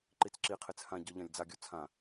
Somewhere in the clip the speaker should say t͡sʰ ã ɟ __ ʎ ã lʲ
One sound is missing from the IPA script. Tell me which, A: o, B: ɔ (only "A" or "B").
B